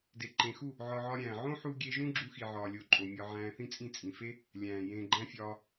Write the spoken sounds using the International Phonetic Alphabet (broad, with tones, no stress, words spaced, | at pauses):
de˨ǃẽ˨xu˦˨ | ʕɒ˧ʕɒ˧ɾʲæ̃ː˨ ʕõ˦ħu˧ ɡʲe˧ʒũ˦ ɡ͡ǁu˧xi˨ʕɒː˨lʲo˨ ǃʼo˨mʲɒ˧ ʕæ̃ː˧θĩ˦t͡sʼĩ˦˨ t͡sʼĩ˨fe˦ | lʲæ̃ː˨ jẽː˧ɡ͡ǃæ̃˦fʲɒː˧